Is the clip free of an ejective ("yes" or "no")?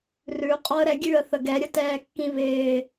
no